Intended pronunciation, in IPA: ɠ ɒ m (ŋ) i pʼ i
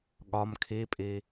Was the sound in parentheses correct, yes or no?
no